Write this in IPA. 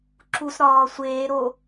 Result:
ǁ u s ɾ ɒː sʷ eː ɾ o

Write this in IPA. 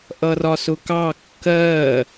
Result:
ʔ ʌ r ɒ s ʊ k ɑ kː ɜ

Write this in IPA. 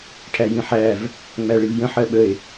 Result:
ʈʰ æ j ĩ ħ æ v | ŋ͡m æ ɭ i v j ə̃ ħ ɜ ɓ ə e̯

